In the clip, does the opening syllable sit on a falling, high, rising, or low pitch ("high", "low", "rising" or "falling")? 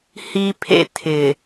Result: high